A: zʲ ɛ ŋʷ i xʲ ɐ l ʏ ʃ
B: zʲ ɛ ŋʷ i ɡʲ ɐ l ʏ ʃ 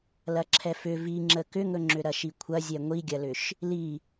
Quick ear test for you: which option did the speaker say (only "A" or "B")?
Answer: B